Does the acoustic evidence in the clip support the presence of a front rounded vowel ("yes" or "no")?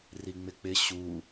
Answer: no